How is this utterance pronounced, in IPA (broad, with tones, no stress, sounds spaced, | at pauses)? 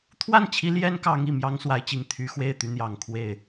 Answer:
t̪ʰ w a˥˩ n t͡ɕʰ i˧˥ l j ɛ˥ n k ɑ˧˥ ŋ i˨˩ m j ɑ˥ ŋ s w a˧˥ ɪ̯ t͡ɕ i˨˩ ŋ t̪ʰ y˧˥ x w e˥˩ ɪ̯ t̪ y˧˥ n̪ j ɑ˨˩ ŋ kʰ w e˥˩ ɪ̯